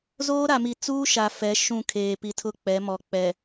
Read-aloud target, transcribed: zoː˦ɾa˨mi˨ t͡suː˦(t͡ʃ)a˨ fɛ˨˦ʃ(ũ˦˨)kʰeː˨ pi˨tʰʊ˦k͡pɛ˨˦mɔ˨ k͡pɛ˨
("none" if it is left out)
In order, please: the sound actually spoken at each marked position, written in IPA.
ʃ, ũ˦˨

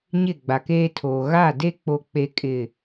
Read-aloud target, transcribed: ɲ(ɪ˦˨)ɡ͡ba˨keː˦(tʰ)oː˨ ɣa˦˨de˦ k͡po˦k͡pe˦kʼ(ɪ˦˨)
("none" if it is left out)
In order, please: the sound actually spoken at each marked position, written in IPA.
ɪ˦˨, tʰ, ɪ˦˨

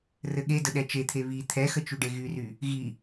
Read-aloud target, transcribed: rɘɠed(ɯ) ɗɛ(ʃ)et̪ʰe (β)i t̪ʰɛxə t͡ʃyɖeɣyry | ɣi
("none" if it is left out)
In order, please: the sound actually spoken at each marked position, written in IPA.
ə, t͡ʃ, β

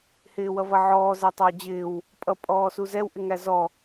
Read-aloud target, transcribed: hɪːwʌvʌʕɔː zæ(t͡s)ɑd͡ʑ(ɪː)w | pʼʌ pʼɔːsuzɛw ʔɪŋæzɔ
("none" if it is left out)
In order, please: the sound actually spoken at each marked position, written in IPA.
tˤ, ɪː

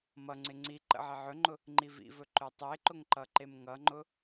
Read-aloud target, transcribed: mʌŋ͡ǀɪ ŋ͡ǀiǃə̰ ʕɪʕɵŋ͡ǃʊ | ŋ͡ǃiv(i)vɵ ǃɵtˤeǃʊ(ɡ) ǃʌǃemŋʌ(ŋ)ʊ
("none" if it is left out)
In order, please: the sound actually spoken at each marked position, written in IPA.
ḭ, ŋ, ŋ͡ǃ

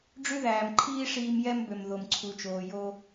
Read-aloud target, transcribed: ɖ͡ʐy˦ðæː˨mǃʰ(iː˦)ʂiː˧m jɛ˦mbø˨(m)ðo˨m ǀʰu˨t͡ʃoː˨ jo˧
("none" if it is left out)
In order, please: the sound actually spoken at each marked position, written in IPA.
iː˦, m

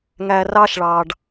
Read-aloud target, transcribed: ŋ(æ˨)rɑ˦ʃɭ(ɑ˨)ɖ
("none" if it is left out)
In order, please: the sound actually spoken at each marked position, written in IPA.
æ˨, ɑ˨

